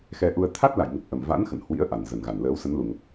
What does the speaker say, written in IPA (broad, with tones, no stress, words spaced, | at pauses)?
xɛ˧ʔu˧ə̯ t̪ʰa˦˥t̚la̰˧˨jŋə˨˩p̚ ʔə˨˩mva̰˧˥n xə̰˧˨nhwḭ˧˥ə̯ ʔa˨˩nzə˨˩nɣa˨˩nləː˨˦w sə˨˦nlu˨˩ŋə˨˩p̚